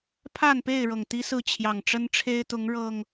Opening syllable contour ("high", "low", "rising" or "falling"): falling